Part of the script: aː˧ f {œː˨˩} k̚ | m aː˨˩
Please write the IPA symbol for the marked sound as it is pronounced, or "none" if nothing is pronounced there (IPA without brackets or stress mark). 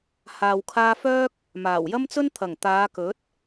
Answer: œː˥